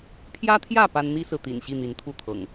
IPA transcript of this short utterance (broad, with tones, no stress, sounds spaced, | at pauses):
pʰ j ä˦ t̪ʰ j ä˥˨ p a˦ n n̪ i˦ s ɹ̩˨ t̪ ḭ˨˩ n ɕ i˥˨ n̪ i˨˦ n t̪ʰ u˥˨ t̪ʰ ɤ̰˨˩ ŋ